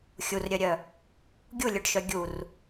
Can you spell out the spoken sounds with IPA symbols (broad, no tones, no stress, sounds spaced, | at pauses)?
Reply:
xʲ u r ɾʲ œ ɾʲ œ | ɡʲ u lʲ œ ɖ ʃ œ ɡʲ u r